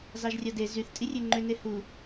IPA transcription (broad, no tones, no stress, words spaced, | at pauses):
zɑʒrʲɑde zyθ tʼirʲøŋ͡ǃø nehu